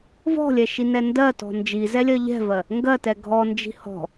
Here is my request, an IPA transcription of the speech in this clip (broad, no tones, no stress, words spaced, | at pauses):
vɔ̤lʲɛʃinɛ ndɜtɔ̤ nd͡ʒizɛlʲɜ ʎɛ̤vɜ | ŋɡɜtɛ ɡʱɔnd͡ʒi̤ hɔ̤